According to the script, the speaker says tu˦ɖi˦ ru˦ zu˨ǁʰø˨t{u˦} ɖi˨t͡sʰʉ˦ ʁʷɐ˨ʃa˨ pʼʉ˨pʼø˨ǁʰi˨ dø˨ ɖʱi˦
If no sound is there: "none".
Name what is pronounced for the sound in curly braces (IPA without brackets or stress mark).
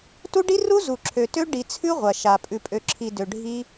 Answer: ø˦